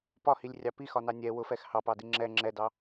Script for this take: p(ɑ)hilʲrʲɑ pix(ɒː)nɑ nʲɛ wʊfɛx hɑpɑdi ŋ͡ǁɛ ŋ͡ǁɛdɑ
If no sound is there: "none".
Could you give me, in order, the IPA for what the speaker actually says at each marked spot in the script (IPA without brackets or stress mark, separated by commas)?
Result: ɒ, ɒ